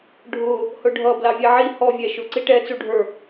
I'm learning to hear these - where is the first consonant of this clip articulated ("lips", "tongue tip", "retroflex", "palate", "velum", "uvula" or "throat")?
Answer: retroflex